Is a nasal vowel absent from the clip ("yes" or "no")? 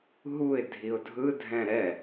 no